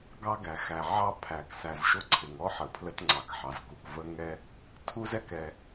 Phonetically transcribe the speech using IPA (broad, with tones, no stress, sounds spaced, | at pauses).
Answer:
ɡ ɑ˥ ɡ æ˩ x æ˩ ʕ ɑ˥ pʰ æ˩ k s æ˨ z ʃ ʊ˥ ǀʰ ɪ˩ ŋ ɔ˥ ħ ə˩ pʰ l ə˦ t ŋ͡ǀ ɑ˩ k ħ ɑ˩ z k u˩ k v ə˥ ŋ ɛ˥ | tʰ u˥ z ɛ˦ k ɛ˨